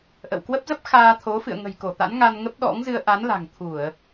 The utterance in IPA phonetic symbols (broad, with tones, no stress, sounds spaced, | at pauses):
ʔ ə̰˧˨ w k w ə˦˥ p̚ z ə˦˥ p̚ x aː˧ t̪ʰ o˨˦ f ɨ̰˧˨ ə̯ ŋ ə̤˨˩ j k o˧˩ t̪ a̰˧˥ n ŋ a˧ n ŋ ə˦˥ p̚ ɗ ɔ̰˧˥ ŋ z ɨ˧ ə̯ ʔ a˨˦ n l a̤˨˩ ŋ t̪ʰ u˧˩˨ ə̯